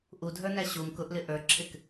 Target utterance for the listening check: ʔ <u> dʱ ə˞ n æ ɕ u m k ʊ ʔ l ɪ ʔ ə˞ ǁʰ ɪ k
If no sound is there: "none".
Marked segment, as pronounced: u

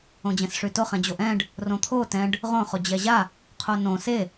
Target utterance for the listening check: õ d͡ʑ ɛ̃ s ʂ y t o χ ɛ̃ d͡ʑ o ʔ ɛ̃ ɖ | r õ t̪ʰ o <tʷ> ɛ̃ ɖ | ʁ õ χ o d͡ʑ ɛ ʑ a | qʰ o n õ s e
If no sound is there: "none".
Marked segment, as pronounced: t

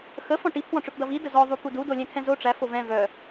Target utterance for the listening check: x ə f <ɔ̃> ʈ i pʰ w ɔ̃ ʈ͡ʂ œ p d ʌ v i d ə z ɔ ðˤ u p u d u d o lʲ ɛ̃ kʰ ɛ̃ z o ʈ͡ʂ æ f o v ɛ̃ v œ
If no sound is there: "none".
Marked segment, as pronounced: ɔ̃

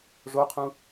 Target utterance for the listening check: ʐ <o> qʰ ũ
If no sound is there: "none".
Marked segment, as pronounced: o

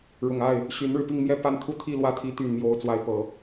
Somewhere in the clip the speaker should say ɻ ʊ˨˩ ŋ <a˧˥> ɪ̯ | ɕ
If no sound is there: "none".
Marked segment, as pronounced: a˥˩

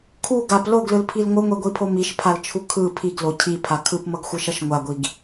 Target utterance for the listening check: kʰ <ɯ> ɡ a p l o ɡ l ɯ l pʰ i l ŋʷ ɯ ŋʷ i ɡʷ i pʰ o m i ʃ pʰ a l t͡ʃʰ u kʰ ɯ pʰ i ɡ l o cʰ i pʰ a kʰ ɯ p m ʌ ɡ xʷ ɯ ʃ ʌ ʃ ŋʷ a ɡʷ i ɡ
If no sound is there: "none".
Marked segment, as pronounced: u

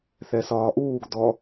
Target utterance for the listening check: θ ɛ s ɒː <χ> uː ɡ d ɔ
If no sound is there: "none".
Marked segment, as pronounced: ʔ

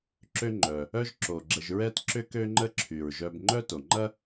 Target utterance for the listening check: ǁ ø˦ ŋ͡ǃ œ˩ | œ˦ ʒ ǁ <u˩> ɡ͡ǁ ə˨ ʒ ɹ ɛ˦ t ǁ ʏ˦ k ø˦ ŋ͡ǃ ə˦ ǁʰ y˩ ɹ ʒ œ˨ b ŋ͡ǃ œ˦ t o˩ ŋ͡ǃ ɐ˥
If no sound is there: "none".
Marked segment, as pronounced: o˩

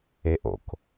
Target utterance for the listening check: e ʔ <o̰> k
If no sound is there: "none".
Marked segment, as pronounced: o̰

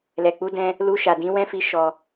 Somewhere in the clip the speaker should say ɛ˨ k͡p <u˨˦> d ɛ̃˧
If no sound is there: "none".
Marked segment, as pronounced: u˨˦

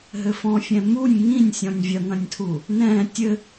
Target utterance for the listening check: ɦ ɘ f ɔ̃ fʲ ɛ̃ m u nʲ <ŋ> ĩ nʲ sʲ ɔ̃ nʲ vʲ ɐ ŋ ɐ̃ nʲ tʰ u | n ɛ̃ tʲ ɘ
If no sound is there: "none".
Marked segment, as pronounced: ŋ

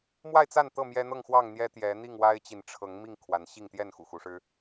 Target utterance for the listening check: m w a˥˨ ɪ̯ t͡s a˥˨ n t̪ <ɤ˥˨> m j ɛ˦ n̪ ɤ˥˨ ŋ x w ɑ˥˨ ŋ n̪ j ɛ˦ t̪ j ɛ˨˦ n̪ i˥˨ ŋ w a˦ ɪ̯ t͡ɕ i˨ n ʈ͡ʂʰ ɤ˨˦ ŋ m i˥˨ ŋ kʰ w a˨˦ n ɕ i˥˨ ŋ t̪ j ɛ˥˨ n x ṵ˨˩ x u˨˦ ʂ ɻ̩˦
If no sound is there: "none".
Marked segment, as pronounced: ɤ˥˨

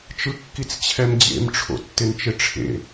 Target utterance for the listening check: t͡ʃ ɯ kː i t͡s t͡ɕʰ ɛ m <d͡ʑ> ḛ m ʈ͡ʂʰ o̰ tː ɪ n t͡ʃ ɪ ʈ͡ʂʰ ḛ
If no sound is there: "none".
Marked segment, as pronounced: d͡ʑ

